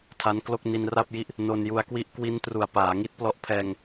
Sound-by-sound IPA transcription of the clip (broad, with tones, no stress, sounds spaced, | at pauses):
tʰ a˦˥ n k l o˥˩ k̚ n i˧ n r a˥˩ p̚ j i˦˥ ʔ | n o˧ n j u˧ a̯ k w i˥˩ ʔ k w i˦˥ n t r u˨˩ a̯ p aː˩˦ ŋ i˦˥ t̚ p l ɔ˦˥ ʔ pʰ ɛː˧ ŋ